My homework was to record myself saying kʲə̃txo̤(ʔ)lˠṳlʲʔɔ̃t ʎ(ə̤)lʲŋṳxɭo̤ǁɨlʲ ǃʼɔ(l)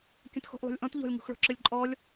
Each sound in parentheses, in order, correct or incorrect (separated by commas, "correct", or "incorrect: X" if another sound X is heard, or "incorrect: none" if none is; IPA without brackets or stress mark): correct, incorrect: ɔ̤, incorrect: lʲ